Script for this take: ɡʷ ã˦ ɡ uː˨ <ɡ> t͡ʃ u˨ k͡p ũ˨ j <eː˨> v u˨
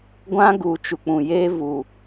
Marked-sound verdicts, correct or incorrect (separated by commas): incorrect, incorrect